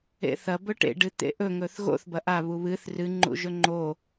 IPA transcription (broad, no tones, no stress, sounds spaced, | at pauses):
ḛ θ ɐ b ɵ ʈ ḛ ɖ ɨ t̪ ḛ ʔ ɵ ŋ ɵ θ ɣ o̰ θ b ɐ ʔ a β u β ɨ θ r ɨ ŋ͡ǃ ṵ ʒ ɵ ŋ͡ǃ o